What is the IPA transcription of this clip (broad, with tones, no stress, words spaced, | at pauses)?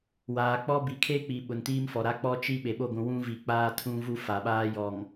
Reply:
waː˨k͡pɔ˦ bi˨kʰe˦k͡pi˨ ɓʊ˨ntiː˦mfɔ˨ɾa˦ k͡pɔ˦t͡ʃi˦ ɓe˨ɓo˦˨ɡʷũ˨ wũ˦vi˨ k͡paː˦tʰũ˦vu˦ fa˨ɓaː˦ jɔ˨ŋ